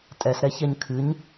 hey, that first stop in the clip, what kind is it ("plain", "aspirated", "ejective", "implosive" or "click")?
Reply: ejective